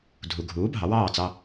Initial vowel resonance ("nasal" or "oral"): oral